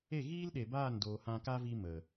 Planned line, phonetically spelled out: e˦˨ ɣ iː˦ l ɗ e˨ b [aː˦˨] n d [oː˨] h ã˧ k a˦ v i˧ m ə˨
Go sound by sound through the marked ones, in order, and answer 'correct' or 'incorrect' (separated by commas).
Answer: correct, correct